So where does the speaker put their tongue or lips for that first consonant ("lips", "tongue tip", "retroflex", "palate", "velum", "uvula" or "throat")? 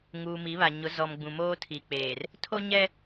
velum